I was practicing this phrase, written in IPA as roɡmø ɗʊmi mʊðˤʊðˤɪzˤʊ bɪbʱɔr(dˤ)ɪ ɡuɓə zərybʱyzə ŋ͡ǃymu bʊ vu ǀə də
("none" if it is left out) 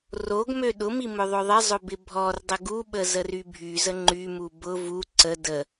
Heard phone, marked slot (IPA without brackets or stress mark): dˤ